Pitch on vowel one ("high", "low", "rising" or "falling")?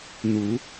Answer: rising